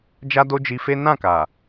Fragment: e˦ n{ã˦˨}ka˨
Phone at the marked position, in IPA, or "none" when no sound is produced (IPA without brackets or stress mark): ã˦˨